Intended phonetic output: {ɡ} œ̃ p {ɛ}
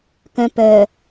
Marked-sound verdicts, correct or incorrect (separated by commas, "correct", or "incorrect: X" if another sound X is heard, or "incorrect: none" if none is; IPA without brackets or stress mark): incorrect: k, incorrect: œ